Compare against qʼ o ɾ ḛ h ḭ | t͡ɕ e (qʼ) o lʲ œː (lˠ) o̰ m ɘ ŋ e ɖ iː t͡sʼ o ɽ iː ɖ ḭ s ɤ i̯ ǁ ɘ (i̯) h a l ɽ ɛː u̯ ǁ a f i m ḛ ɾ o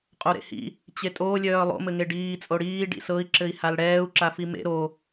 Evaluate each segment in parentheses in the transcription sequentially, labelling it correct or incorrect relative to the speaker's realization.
incorrect: tʼ, correct, correct

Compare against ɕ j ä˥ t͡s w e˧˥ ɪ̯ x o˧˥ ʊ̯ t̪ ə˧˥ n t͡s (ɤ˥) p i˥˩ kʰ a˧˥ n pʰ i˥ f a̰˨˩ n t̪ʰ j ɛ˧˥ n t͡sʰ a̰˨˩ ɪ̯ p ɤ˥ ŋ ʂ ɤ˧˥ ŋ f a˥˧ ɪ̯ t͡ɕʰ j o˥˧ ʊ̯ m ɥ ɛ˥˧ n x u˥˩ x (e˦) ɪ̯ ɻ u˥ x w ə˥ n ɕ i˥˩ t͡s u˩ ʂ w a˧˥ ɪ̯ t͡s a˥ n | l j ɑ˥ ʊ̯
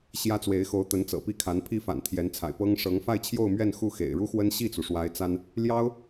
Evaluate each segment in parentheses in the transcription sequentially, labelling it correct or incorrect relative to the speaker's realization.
incorrect: ɤ̰˨˩, incorrect: ḛ˨˩

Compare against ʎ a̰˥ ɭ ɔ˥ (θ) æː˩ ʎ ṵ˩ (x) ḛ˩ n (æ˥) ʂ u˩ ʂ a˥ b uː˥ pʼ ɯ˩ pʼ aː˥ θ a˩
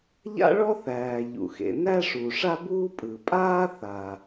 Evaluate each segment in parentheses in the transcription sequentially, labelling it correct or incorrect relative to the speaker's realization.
correct, correct, correct

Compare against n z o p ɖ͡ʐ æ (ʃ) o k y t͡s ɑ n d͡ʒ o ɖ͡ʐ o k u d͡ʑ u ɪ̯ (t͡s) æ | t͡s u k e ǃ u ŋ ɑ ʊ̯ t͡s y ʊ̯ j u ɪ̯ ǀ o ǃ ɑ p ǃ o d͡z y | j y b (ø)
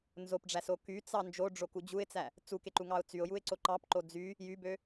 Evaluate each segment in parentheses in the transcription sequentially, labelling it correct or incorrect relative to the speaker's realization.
incorrect: s, correct, correct

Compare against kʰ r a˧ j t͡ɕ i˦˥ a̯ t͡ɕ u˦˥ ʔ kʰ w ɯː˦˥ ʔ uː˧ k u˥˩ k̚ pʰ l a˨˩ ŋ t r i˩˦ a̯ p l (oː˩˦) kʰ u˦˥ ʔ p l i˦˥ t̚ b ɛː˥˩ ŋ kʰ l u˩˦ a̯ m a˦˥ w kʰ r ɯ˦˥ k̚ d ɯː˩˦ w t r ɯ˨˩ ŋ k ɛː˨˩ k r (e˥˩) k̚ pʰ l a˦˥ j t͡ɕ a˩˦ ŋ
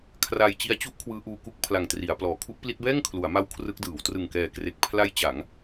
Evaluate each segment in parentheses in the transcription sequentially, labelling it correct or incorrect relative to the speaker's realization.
incorrect: ɔː˩˦, incorrect: e˨˩

